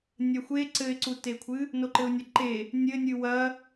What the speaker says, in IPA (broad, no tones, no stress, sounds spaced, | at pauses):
nʲ ɐ xʷ e ǀ ɘ ɪ̯ ǀ u t e kʷʰ ɨ | n o ǃ ɘ ʊ̯ nʲ ɐ ǃ e | nʲ ɘ nʲ ɨ w ɐ